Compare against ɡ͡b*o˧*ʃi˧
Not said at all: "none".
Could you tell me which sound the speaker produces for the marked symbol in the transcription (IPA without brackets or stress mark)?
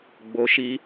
o˧